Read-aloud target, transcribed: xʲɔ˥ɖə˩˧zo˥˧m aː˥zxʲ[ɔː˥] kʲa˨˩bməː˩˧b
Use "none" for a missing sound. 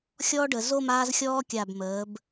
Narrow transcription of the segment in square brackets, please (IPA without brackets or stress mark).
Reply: ɔː˥